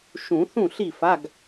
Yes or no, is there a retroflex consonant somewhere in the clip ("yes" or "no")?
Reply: no